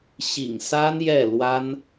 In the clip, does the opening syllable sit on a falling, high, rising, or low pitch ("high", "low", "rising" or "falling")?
low